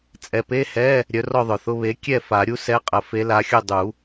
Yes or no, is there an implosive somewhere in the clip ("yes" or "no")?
no